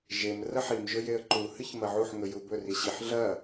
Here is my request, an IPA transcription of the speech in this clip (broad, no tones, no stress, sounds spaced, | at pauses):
ʒ e m r ɐ ħ i m ʒ ɵ j e ə̯ ǃ u h ɨ ç m ɐ ʕ u ħ ŋ ɵ j u b ɵ r i ɕ i ħ ɮ ɐ